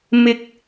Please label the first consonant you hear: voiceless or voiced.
voiced